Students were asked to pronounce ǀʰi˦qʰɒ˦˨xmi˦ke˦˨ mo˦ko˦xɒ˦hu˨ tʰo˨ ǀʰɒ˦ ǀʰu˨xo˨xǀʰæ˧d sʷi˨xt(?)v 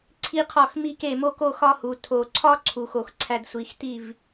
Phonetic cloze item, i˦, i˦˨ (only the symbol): i˦˨